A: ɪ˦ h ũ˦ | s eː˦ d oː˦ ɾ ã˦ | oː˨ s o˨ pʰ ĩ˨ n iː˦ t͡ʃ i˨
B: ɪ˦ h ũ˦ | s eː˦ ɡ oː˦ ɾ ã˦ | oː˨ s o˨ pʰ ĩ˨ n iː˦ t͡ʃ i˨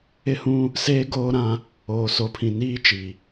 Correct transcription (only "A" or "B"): B